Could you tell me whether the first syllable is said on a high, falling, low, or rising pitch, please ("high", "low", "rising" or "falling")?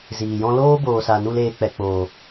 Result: low